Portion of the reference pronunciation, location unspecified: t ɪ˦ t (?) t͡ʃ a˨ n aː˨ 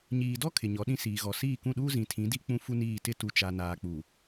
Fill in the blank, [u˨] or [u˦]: u˨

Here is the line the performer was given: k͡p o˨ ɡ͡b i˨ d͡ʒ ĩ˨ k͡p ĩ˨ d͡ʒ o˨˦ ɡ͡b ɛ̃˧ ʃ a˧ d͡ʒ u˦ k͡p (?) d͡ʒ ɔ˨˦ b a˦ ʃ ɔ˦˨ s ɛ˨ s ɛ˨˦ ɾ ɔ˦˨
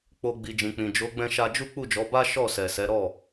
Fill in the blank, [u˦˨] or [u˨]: u˦˨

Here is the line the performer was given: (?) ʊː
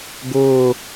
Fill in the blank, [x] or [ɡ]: ɡ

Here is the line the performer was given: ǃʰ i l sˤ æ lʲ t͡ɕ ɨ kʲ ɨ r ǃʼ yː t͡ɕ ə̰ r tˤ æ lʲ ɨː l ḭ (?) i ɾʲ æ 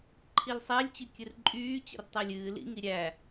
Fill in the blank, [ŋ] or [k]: ŋ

